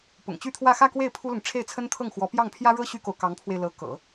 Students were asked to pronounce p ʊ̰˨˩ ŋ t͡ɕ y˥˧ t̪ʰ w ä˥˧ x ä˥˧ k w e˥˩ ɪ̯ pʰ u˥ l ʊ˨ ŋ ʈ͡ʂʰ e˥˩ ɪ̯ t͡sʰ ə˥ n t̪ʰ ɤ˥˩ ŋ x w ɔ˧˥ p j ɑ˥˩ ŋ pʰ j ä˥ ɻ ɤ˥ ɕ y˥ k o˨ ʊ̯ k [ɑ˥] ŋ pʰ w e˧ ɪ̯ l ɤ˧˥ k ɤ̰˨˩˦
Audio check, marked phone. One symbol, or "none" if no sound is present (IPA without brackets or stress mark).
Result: ɑ˧˥